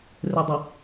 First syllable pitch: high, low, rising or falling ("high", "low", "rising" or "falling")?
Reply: low